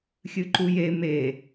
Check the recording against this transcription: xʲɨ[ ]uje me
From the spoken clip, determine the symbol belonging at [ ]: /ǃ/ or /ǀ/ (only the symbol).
ǃ